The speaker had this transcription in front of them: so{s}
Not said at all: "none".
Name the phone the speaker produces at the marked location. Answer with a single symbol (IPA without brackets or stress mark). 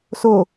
none